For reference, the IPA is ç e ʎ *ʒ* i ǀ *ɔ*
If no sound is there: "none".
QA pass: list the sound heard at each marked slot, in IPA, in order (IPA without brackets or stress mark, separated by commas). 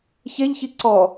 ç, ɔ